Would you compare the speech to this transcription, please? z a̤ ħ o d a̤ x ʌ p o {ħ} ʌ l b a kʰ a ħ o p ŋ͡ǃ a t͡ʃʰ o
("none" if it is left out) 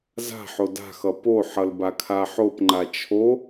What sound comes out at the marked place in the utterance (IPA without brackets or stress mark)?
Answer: ħ